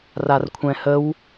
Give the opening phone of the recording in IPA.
r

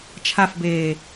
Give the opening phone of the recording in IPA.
t͡ʃʰ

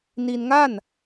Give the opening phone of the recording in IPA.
n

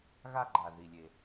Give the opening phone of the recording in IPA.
ɣ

